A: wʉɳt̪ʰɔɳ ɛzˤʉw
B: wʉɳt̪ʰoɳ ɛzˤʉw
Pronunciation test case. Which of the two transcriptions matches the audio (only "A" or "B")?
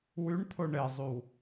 B